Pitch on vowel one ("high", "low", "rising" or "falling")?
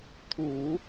low